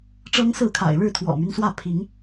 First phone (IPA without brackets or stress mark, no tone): ʈ͡ʂ